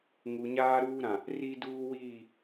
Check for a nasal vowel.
present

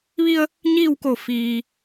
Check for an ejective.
absent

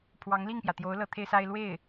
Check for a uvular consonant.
absent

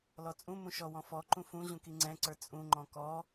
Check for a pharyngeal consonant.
absent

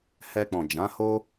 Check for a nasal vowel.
present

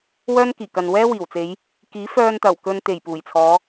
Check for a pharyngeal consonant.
absent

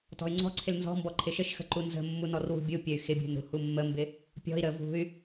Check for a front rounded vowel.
present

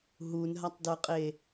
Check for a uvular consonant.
present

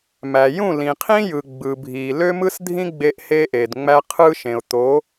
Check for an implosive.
absent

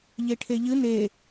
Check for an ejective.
absent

